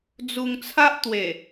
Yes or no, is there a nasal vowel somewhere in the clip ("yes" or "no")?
no